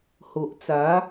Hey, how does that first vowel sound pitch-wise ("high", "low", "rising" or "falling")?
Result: low